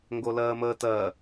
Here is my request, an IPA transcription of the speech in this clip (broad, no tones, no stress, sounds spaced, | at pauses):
ŋ ɡ o l ɜː m əː t ɜ